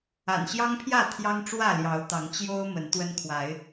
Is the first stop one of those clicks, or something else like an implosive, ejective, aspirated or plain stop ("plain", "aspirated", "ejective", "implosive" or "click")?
aspirated